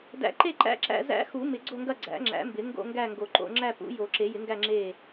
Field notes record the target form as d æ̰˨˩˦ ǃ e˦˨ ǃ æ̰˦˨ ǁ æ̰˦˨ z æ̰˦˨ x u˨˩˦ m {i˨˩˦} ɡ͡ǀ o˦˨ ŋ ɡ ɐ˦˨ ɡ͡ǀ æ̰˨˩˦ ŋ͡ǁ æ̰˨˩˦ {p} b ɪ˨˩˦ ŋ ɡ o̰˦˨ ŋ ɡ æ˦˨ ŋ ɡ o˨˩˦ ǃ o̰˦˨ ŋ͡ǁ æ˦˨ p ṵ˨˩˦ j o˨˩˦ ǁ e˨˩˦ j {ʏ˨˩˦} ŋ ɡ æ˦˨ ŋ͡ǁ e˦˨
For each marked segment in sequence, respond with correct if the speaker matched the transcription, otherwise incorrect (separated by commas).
incorrect, incorrect, incorrect